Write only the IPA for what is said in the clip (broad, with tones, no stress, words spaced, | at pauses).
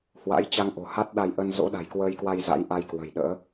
hwa̰˧˥jt͡ɕa˧ŋʔo̤˨˩ ha˦˥t̚ɗa˧jʔə˧n zo̰˧˥ɗa̤˨˩jkwəː˧jkwa˧j za̰˧˥jʔa˧jkwə̤˨˩jɗə̰ː˧˥